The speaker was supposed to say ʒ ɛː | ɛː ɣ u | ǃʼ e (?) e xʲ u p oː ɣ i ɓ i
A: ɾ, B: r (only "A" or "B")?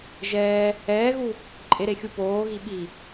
A